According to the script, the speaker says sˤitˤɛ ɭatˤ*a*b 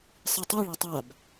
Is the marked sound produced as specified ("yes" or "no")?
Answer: yes